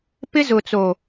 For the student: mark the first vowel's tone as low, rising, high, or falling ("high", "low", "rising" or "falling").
high